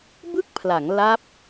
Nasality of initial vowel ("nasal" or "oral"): oral